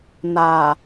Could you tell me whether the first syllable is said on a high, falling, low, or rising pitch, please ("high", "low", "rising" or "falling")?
low